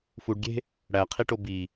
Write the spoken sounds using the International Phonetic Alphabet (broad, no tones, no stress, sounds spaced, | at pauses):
f u ɖ ɡʲ e̤ | ɽ æ qʰ i ʈ o b i